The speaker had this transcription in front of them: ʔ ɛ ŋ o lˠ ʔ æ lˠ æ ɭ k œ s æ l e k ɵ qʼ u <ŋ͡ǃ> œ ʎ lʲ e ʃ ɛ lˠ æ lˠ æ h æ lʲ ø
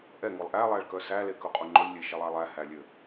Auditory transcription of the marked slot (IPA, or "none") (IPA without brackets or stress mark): ŋ͡ǃ